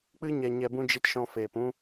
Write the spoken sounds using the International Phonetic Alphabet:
k͡p ɨ˦ ɲ ɛ˧ ɲ ɛ˧ b ũ˦ d͡ʒ i˦ t ʃ ɔ̃˧ f eː˨ p ũ˦

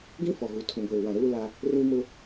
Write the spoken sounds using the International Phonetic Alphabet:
ɡ ĩ˦ f ɔ˨ ɣ u˨ tʰ ũ˨ ɡʷ eː˨ w ã˨ ɾ uː˦ l a˦ | r ĩ˦ m ʊ˦

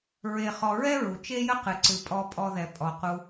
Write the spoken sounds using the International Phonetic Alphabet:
ɹ e˨ χ ɔ˨ ɹ ɛ˥ ɹ u˩ t͡ʃ e˥ j ə˥ q ɨ˩ ǀ ɨ˩ pʼ ɔ˨ pʼ ɔ˨ ð ɛ˩ pʼ ɔ˩ q u˨

